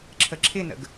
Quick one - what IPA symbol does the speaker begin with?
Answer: ǁʰ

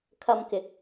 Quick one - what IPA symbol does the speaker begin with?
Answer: kʰ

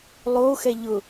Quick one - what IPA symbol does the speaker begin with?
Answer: lˠ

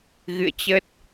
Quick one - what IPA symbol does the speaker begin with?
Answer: ɣ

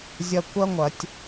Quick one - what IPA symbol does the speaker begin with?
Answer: zʲ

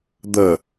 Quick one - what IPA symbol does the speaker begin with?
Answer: d̪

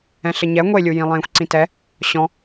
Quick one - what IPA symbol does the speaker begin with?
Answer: ɛ̃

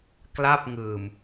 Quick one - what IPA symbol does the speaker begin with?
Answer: k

